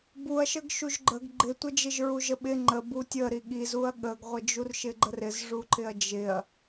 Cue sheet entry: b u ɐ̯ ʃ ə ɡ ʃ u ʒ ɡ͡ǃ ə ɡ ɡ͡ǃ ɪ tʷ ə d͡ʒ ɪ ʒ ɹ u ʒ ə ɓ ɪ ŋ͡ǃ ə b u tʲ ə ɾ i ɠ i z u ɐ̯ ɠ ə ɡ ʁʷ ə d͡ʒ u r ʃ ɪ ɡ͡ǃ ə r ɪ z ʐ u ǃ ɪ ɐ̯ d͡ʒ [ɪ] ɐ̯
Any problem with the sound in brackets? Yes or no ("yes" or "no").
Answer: no